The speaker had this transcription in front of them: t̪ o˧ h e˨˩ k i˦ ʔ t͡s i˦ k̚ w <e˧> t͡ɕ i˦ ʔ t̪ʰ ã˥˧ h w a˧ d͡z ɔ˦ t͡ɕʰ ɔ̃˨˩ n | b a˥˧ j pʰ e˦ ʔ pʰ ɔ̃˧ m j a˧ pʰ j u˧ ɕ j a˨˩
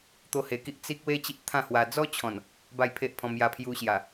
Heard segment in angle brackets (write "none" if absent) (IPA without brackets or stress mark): e˦